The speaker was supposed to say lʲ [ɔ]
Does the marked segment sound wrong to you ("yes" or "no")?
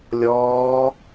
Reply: yes